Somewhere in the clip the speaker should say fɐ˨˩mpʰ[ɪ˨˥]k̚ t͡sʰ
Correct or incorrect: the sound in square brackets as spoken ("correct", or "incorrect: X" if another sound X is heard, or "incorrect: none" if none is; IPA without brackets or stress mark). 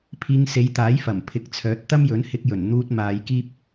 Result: correct